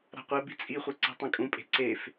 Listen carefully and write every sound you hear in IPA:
ɾa̤qʷɛbi̤ t͡sʼiχʷe ǀe̤tˤɛ̃kʼũpʼe̤ ǀef

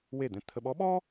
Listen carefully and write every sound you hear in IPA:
we˥˩d̪ɛ̃˧˥ t̪ʰə˧ ɓɔ˧˥ɓɔ˥

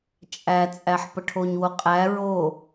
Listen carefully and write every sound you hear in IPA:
t͡ʃʼæt͡sʼæħ pəʈʰoɲwo qʼæ ɹo

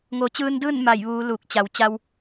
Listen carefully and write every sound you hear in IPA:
ŋo˩˧t͡ɕɯː˧ndɯː˥˨n ma˧˩j ʋuː˩˧ luː˧˩k̚t͡ɕa˩w t͡ɕa˧w

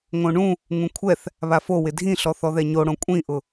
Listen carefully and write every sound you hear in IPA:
ŋõɳũ | ŋũkʷʰɛθ | βafowɪ dʱĩɬɔ θɔðɛɲoɽõ kʷʼĩʔʊ

